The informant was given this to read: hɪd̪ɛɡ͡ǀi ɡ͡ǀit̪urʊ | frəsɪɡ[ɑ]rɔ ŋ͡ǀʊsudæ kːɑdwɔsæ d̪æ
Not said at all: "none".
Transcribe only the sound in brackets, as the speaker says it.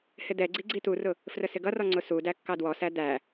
ʌ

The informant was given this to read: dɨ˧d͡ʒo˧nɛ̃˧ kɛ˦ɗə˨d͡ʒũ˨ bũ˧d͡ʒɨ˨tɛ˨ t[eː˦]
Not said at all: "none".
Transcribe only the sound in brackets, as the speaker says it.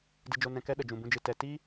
iː˦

